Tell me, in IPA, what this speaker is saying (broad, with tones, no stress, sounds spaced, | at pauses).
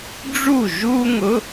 ɖ͡ʐ u˥˨ ʒ u˥ ŋ ʊ˧˥˧